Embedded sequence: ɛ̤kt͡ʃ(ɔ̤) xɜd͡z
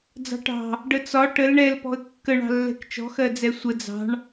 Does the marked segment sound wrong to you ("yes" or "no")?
no